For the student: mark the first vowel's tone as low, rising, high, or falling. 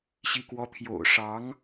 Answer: falling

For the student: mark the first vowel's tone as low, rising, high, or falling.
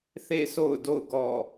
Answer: falling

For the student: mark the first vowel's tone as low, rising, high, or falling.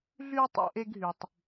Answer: high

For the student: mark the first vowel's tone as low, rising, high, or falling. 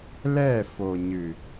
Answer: falling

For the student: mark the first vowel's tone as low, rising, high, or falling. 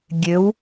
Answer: rising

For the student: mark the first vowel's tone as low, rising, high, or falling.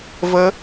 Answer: high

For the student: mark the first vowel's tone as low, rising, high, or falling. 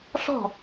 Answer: falling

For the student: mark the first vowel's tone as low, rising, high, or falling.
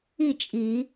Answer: falling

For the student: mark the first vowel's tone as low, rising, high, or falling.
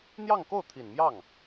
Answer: falling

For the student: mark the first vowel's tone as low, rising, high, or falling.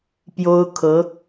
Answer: high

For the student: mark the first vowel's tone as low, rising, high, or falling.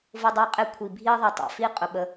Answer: high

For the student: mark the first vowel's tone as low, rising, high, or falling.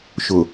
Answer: low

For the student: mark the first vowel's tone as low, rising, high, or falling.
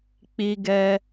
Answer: high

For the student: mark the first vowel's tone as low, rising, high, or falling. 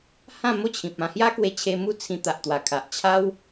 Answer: falling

